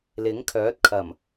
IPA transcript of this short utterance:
l ɪ˨˥ ŋ kʰ œː˨˥ t̚ kʰ ɐ˨˩ m

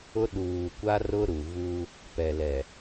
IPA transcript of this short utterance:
ʊ˦ ɗ uː˨ kʷ a˦ r ʊ˦ ɾ u˨ v u˦ | p ɛ˨ l ɛ˨

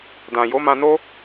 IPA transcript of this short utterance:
d ã˨ j o˨˦ m ã˧ n o˦

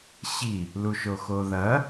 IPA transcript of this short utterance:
ɕ i | l u ʃ o x o ð ɐ

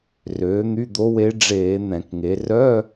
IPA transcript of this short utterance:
r øː˩˥ n̪ y˧˥˧ d̪ o˧˥ w e˧˥ ɖ͡ʐ eː˧˩˧ n̪ ɛ̃˧˩˧ k ŋ e˩˥ r œ˧˥˧

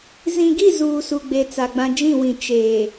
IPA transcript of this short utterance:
z ĩ˨ ɡ i˦˨ z uː˨ s u˨ ɡ͡b e˨ t͡s a˨ ɡ͡b ã˦ d͡ʒ ĩ˦˨ w ĩ˨ t͡ʃ eː˨

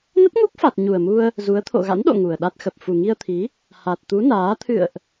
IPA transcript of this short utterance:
n ə˦˥ t̚ ŋ u˦˥ k̚ f a˨˩ t̚ ɲ u˨˩ ə̯ m u˧ ə̯ | z u˨˦ ə̯ t̪ʰ o̰˧˨ ɣ a̰˧˥ n ɗ o̰˧˨ ŋ u˨˩ ə̯ ɗ a˦˥ t̚ x ə˨˩ p̚ f u˨˩ ŋ i˧ ə̯ t̪ʰ i˨˦ | h a˨˩ t̚ t̪ u˨˦ n aː˨˦ t̪ʰ ɨ̰˧˨ ə̯ ʔ

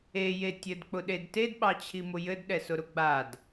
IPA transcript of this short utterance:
e j e tʲ ɘ d k͡p ʊ ɗ e d t e d ɓ ɑ t͡ɕʰ i m ʊ j ɘ d ɗ ɛ s ʊ ɾ ʊ ɡ͡b a d

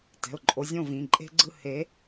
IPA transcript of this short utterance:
t ɛ̤˩˧˩ ʊ̯ ǃʼ o˨˦ zʲ õ˦˨ v ĩ˩˧˩ ǃʼ e̤˦ ɡ͡ǀ ɯ˦˨ h e˨˦

